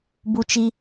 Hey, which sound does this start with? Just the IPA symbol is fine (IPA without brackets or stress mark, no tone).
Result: b